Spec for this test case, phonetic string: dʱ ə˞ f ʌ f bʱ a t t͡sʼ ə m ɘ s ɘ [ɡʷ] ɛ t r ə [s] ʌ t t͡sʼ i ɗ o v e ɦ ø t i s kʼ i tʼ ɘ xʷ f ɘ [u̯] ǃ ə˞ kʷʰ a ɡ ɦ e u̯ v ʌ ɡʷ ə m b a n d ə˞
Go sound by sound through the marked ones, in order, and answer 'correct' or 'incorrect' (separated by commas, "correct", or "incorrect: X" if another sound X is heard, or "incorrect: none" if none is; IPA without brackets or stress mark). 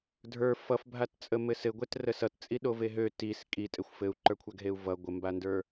correct, correct, correct